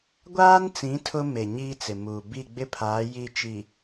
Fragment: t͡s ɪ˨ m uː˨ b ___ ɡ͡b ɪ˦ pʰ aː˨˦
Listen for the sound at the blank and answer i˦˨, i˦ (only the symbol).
i˦˨